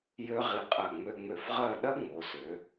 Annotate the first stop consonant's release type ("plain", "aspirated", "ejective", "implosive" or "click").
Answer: ejective